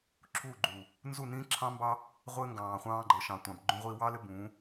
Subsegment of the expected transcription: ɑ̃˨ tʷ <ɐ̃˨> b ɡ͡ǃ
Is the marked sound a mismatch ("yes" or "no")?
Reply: yes